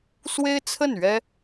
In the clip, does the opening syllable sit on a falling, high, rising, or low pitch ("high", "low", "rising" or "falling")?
high